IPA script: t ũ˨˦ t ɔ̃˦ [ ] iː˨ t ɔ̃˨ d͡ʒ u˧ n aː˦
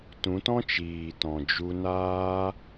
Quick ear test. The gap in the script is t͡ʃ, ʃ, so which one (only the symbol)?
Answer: t͡ʃ